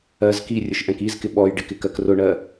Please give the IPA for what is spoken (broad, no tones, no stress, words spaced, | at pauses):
ɜz kirʲʊʃ ʔɛ̃kizkɪ ɓɔj ɖɪkɪ kɜkrʊɳɜ